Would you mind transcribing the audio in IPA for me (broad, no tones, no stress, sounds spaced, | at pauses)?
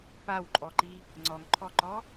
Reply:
p a w ǃʼ ɔ ǃ i | ŋ͡ǀ ɔ ŋ ǃʰ ɔ ǃ ɔ